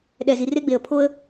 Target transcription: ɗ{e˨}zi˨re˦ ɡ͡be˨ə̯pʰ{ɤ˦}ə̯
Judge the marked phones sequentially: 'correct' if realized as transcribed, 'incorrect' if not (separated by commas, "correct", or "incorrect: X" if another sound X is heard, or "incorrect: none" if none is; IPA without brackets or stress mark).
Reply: incorrect: ɛ˨, incorrect: o˦